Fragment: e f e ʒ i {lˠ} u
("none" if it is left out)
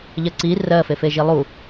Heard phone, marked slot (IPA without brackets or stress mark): lˠ